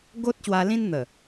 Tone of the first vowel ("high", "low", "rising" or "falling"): high